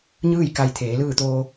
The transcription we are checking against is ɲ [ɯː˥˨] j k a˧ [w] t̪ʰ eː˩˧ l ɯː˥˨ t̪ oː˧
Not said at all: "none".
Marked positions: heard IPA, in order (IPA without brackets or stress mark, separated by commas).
ɯː˥˨, j